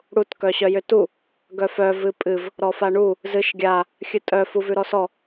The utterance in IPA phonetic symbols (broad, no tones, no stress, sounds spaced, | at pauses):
ɽ u t k œ ɕ œ j ʏ t u | ɡ œ f œ v ɨ pʼ ɨ v | ɾ ɔ f a ɳ u | z ɨ ʃ ɡʲ a | xʲ ɨ tʼ œ f u v ʉ ɾ ɔ s ɔ